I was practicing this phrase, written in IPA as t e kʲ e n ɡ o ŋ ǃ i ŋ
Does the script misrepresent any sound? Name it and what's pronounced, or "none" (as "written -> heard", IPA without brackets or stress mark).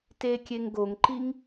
n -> ŋ